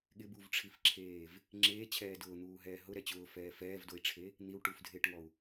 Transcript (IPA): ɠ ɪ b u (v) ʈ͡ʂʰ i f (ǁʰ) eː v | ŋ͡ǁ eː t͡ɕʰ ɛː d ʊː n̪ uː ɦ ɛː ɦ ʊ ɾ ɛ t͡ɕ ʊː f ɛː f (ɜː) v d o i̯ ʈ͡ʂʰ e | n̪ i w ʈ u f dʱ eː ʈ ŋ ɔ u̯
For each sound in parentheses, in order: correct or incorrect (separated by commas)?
correct, correct, incorrect